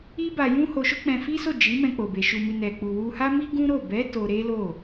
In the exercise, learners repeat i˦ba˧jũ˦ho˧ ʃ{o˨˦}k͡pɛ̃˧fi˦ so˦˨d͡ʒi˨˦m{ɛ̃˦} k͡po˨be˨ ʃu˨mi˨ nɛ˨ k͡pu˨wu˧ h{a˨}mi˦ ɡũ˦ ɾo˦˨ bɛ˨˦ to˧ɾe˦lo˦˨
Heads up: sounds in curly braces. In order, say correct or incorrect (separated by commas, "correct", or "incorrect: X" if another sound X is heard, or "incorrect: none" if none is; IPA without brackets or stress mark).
incorrect: o˦, incorrect: ɛ̃˧, incorrect: a˦